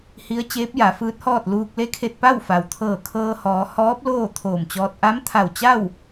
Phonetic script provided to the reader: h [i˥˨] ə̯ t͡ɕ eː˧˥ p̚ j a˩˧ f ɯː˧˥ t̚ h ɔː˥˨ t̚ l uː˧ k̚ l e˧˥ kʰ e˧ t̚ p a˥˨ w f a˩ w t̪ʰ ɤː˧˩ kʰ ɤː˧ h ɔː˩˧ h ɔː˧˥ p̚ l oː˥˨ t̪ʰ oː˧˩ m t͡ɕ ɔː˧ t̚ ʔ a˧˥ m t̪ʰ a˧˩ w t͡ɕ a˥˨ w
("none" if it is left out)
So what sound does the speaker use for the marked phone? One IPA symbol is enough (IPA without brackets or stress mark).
i˧˥